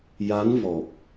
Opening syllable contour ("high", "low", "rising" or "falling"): rising